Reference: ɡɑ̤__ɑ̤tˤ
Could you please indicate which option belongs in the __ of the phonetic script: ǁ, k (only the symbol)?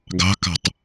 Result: k